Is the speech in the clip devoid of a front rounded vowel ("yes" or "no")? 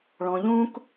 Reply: yes